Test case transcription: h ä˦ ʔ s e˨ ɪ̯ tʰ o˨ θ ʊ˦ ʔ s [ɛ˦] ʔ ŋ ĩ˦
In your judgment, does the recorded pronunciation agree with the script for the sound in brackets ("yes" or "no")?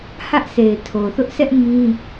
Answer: yes